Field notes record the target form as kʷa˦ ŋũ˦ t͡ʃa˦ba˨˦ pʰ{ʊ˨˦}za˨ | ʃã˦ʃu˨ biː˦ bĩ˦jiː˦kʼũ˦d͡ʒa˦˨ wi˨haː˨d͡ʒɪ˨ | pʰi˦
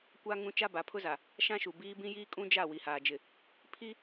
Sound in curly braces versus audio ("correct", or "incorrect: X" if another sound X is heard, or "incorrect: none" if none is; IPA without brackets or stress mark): incorrect: ʊ˦